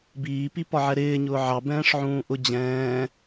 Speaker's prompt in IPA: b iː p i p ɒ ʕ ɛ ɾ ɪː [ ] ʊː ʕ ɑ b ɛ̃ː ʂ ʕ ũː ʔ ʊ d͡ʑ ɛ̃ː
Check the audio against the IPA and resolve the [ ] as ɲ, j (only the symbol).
ɲ